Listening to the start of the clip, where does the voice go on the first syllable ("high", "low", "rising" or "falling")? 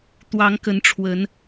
rising